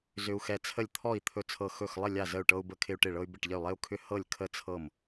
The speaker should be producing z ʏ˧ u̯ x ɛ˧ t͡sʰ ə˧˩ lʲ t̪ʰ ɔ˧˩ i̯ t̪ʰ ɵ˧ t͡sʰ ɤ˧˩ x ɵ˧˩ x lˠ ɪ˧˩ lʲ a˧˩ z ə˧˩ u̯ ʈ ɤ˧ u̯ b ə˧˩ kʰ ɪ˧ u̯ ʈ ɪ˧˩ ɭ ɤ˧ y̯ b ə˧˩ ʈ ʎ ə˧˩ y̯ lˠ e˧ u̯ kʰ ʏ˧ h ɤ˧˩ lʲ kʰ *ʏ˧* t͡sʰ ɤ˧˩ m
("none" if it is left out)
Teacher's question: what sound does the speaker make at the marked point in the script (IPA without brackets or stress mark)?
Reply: ə˧